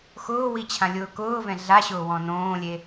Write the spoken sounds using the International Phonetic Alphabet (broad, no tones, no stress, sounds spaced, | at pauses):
x ʊː w i t͡ɕʰ ã lʲ ʊː k ʊː v ɛ̃ ɮ a ɕ ʊː w ɔ̃ n õː lʲ e